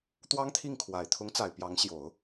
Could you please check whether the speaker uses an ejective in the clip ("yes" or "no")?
no